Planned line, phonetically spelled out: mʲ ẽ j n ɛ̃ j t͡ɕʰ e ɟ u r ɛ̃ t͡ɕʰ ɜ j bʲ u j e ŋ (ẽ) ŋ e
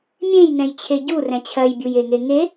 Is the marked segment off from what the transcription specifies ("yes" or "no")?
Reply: yes